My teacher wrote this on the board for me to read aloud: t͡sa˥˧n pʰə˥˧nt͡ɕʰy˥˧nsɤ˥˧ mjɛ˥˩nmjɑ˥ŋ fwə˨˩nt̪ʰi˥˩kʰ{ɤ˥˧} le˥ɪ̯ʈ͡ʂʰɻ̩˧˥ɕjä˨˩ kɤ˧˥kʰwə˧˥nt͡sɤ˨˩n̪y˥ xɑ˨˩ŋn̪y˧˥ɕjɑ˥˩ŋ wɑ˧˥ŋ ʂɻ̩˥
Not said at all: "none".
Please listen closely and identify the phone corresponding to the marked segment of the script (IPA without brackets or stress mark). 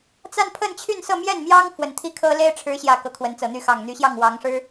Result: ɤ˥